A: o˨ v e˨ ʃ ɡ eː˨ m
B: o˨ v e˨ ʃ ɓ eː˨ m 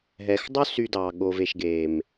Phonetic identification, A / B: A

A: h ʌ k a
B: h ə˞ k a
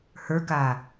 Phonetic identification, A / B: B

